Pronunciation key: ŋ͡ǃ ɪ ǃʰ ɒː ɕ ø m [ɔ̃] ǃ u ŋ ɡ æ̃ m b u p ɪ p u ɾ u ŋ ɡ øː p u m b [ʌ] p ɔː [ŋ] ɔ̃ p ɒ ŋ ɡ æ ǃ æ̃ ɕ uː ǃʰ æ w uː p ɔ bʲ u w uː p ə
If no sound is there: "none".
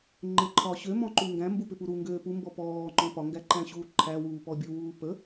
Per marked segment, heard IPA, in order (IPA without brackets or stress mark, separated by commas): ɔ̃, ɔ, ŋ͡ǃ